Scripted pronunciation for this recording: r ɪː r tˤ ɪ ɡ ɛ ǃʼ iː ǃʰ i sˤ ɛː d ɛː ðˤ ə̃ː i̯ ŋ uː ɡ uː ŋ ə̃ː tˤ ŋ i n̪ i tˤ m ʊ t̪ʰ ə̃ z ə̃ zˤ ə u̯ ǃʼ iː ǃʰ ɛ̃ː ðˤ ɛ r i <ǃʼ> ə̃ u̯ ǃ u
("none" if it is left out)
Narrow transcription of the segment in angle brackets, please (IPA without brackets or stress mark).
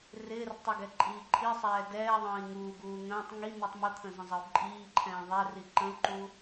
ǃ